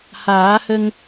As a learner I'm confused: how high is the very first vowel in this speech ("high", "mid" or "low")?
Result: low